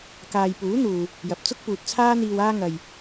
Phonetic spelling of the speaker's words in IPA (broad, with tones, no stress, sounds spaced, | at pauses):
k aː˨ j p uː˨˥ n̪ uː˨ | j ɐ˨˥ p̚ t͡s ʊ˥ k̚ p uː˨ t̚ t͡sʰ aː˥ n̪ iː˧ w aː˧ ŋ ɐ˨ j